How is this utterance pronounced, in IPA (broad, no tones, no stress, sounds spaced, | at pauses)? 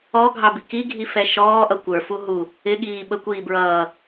ɔ ɡʱ ɑ b i k i ɡʱ i f ɛ ʃ ɔː ʔ ʌ kʷ ə˞ f u ɦ u | ɪ ɠ iː ɓ ə kʷ iː b ɹ ʌː